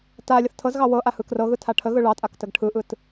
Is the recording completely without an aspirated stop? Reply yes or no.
no